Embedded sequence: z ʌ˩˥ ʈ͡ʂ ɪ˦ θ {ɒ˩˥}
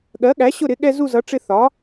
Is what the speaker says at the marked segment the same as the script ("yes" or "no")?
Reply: yes